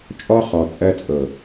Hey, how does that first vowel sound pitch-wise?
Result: high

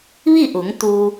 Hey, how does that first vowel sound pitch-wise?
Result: falling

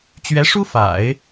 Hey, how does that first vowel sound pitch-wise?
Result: rising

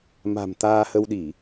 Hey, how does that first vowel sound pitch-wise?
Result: low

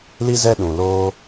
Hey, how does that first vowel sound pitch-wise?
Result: high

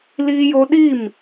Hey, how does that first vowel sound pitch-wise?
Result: high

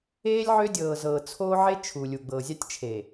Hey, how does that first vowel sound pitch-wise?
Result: high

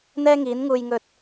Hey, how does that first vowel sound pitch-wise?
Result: high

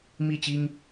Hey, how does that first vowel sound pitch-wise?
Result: falling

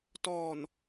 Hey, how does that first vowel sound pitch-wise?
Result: low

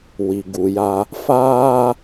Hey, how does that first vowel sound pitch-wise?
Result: low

